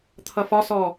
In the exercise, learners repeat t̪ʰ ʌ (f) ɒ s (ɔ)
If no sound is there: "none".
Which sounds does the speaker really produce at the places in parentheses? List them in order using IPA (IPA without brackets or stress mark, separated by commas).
f, ɔ